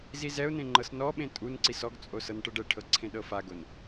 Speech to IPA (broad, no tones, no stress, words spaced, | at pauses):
zizɛʊ̯nẽ ŋ͡ǃɤsnɔɓẽ tʼunǀis ɔɡt͡sʼo sɤnʈɤɖɛʈʰɤ ǀʰẽɗɤfaɡon